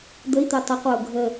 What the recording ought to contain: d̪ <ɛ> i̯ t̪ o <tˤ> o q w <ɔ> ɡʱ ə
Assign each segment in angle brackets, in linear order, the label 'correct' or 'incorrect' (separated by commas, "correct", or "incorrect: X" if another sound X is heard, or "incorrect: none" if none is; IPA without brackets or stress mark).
incorrect: ə, correct, incorrect: o